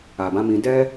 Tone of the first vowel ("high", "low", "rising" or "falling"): low